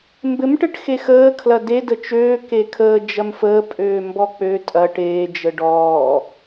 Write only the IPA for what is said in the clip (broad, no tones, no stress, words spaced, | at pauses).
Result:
mbɘm ʈɘʈxexəː kʰlɐde dət͡ʃøː kekʰəː d͡ʒɐmfəːpʼøː mbɔk͡pø tʼɐʈ eːd͡ʒə ɖɔː